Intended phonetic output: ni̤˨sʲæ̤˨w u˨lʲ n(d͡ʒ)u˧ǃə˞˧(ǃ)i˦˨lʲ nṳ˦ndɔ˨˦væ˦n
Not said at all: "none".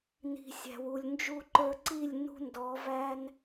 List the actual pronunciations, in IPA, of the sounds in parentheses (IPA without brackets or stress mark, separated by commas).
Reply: d͡ʒ, ǀ